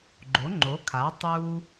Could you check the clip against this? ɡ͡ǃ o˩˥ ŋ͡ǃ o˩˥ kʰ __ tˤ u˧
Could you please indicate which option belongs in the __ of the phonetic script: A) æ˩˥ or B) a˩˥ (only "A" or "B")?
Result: B